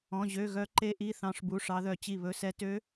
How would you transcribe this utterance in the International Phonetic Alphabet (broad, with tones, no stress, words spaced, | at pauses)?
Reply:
ɔ̃˧˥˧ʑø˧˥˧ɣœ˦˥ ǃe˦˥ʔi˧˥˧ θɑ̃˦˥ʂbu˧˥˧ʂɑ˦˥ðœ˥˨ t͡ɕi˥˨βɵ˦˥sɛ˦˥ tø˦˥